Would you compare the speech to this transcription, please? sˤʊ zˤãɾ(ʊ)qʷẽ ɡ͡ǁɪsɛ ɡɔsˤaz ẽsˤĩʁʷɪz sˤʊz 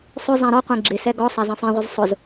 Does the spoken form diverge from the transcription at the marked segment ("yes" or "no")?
yes